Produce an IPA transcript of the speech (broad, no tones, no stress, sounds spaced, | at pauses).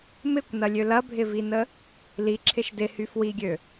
m ɪ kʷ n ɐ lʲ ø l ɐ bʱ ɪ v i n ə | l i ǁʰ ɪ ʃ d ɪ h y f w i ɡʲ ø